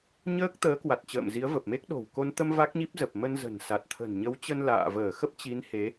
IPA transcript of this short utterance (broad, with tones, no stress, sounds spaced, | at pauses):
ɲ əː˦˥ k̚ t̪ əː˨˦ k w a˨˩ t̚ t͡ɕ ə̰ː˧˨ m z i˨˦ ə̯ v ə˨˩ p̚ m e˦˥ k̚ ɗ o̤˨˩ w k o˧ n t̪ ə˧ m v a˦˥ k̚ ɲ i˦˥ p̚ z ə˨˩ p̚ m ə˧ n z ə̤˨˩ n s a˨˩ t̚ t̪ʰ ə̤˨˩ n ɲ ə˨˦ w t͡ɕ ə˧ n l a̰ː˧˨ v əː˧˩ x ə˦˥ p̚ t͡ɕ i˨˦ n h e˨˦